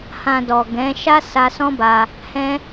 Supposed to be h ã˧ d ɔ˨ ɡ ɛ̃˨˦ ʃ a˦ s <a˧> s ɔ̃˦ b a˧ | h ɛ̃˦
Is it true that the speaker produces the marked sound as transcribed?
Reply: yes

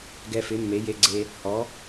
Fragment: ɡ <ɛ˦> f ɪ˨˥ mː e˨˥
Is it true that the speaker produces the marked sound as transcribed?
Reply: yes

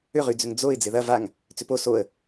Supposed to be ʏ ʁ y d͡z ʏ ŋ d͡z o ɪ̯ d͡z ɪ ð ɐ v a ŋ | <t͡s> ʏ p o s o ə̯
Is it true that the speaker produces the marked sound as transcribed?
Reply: yes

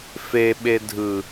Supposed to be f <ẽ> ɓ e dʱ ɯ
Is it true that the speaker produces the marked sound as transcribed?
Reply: no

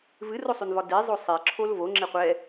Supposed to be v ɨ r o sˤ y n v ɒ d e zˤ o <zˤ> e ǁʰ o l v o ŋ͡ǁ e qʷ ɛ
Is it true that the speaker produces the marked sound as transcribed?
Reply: no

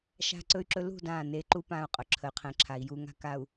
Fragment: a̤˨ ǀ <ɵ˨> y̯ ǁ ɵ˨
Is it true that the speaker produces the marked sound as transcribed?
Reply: yes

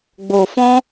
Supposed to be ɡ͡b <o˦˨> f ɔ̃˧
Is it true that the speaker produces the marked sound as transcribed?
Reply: no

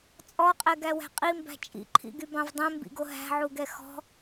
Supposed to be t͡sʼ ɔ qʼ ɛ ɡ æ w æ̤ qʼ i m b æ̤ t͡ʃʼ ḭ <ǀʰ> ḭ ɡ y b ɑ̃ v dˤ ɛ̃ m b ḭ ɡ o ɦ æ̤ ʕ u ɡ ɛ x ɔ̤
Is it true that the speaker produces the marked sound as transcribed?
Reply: no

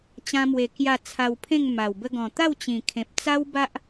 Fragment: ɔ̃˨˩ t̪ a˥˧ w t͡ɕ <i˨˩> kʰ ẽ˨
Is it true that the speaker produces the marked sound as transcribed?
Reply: no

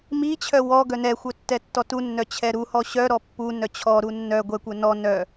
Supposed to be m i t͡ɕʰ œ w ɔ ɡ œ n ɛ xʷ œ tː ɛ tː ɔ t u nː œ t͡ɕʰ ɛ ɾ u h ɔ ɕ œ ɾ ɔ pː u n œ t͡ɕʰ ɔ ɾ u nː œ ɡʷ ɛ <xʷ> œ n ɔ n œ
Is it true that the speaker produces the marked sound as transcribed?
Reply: no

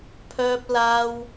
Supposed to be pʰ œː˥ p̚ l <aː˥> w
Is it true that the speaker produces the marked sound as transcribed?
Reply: yes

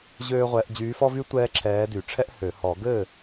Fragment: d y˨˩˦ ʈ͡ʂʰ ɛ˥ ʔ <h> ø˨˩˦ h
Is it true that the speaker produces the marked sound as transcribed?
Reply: yes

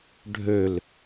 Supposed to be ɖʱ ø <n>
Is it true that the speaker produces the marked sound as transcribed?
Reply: no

